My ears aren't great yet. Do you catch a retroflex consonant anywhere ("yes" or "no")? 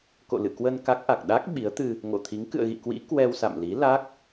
no